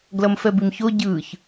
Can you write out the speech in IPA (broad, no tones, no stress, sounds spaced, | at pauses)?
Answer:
ɡ l ʌ m f ɛ b i m ç o ɟ ɯː ç